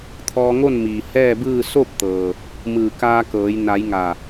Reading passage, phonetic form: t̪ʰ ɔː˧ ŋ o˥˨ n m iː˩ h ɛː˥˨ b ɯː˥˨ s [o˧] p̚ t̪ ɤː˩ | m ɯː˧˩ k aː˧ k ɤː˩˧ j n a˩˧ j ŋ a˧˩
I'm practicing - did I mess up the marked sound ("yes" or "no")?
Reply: yes